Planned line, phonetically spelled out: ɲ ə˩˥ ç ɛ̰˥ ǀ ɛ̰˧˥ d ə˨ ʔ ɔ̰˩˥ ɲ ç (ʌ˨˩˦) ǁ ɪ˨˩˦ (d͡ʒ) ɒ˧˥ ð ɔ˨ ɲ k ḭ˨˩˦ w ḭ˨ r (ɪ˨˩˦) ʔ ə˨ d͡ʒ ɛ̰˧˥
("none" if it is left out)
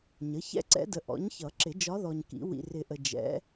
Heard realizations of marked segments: ʌ˨˩˦, d͡ʒ, ɪ˨˩˦

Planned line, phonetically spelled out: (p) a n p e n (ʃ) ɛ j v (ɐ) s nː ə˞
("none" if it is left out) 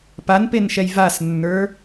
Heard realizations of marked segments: p, ʃ, a

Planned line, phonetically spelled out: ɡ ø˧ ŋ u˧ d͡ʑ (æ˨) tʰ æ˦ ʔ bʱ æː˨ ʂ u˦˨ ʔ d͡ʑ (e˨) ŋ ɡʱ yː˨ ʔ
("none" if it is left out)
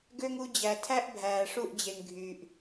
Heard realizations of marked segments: æ˨, e˨

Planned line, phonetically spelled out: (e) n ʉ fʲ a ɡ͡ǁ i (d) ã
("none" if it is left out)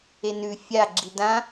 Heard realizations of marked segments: e, d

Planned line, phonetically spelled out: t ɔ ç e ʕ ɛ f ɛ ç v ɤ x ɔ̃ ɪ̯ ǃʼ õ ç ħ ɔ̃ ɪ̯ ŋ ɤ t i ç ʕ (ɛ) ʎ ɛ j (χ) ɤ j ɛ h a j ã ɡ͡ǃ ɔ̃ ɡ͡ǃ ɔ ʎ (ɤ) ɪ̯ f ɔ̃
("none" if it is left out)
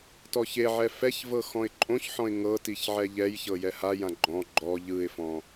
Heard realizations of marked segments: ɛ, ç, ɯ

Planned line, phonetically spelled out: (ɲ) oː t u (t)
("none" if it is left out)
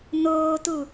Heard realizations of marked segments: n, none

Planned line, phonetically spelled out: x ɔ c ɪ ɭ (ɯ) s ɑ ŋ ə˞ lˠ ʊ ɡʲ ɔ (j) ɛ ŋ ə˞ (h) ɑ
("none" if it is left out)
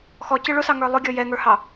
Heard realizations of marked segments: ʊ, j, h

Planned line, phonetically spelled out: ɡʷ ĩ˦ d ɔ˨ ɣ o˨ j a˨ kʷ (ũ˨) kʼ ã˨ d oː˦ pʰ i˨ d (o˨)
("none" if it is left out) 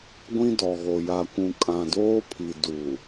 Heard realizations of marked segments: ũ˨, u˨

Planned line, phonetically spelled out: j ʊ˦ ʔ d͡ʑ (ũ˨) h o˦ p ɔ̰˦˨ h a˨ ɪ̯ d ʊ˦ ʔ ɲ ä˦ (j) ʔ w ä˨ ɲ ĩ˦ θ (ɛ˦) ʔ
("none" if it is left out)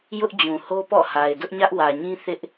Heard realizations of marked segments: ũ˨, none, ɪ˦

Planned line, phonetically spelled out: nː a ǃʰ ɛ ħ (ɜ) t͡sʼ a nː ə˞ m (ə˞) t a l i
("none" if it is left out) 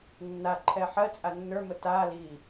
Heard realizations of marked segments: ɜ, ə

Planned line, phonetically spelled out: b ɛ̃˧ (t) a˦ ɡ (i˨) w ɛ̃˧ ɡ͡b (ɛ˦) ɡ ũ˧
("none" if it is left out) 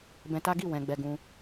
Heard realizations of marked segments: t, i˦˨, ɛ˧

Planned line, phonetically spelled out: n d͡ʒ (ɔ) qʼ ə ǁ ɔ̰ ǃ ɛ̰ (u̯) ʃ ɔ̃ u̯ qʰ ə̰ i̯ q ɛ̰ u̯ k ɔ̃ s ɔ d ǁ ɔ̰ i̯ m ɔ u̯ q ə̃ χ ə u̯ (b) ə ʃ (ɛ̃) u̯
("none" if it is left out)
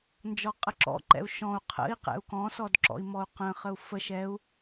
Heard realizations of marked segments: ɔ, u̯, f, ɛ

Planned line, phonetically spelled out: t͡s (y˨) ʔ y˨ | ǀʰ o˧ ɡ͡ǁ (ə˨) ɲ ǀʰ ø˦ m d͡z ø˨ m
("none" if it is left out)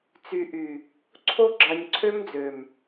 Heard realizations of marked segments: y˨, ɑ˨

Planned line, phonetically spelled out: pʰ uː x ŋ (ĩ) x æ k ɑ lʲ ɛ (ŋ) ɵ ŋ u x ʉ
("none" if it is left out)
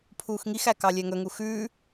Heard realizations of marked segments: i, ŋ

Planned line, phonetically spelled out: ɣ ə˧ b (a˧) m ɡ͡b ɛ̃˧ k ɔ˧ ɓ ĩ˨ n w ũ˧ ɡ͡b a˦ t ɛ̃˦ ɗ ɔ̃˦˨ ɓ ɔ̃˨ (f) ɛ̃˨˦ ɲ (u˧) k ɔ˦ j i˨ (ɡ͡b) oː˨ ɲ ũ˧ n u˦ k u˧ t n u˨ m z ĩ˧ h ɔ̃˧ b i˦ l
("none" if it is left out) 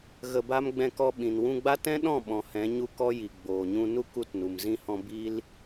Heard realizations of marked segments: a˦, h, u˧, ɡ͡b

